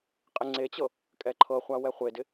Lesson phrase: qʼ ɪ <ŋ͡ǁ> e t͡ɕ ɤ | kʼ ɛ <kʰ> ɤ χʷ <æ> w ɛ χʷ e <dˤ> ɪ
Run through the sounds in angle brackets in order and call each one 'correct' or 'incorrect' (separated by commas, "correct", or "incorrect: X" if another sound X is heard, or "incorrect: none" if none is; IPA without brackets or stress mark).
incorrect: ŋ͡ǀ, incorrect: ǃʰ, incorrect: a, incorrect: d